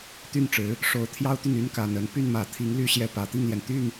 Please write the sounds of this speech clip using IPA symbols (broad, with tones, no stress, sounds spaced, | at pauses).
t̪ y˥˩ n ʈ͡ʂ ɻ̩˧˥ | ʂ o˧˥ ʊ̯ t̪ʰ j ɑ˥ ʊ̯ t̪ y˥˩ n y˥ n k a˨˩ n ə˧˥ n p y˥˩ n m ä˨˩ t̪ʰ i˧˥ ŋ l y˥ ɕ j ɛ˥˩ p ä˨˩ t̪ i˥˩ ŋ l j ɛ˩ n t̪ y˥˩ n